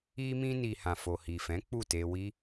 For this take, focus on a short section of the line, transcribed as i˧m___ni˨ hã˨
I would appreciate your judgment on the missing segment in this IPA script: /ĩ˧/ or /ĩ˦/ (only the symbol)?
ĩ˧